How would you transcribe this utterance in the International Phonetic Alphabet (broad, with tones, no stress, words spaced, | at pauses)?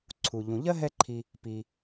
ǀʰu˩ ʎũ˩ʎɜ˥ɦɛ˦ǃʰi˨ | pi˩